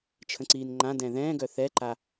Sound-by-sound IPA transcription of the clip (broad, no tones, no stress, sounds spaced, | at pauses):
t͡ʃʰ ə̃ ǀ iː n ŋ͡ǃ ã d ɛ̃ ð ɛ̃ː ɡ œ θ ɛ ǃ a